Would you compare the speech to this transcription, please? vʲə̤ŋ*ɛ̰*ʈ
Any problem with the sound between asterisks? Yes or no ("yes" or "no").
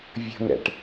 no